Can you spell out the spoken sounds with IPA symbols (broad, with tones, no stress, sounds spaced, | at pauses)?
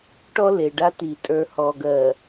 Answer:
ʈ ɔ˦ l e˨ ɖ a˦ t i˨ tʼ ə˞˨ h ɔ˨ ɡ ɜ˨